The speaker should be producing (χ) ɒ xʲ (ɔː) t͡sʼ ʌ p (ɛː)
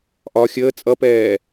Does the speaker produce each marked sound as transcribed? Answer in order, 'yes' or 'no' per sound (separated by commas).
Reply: no, no, yes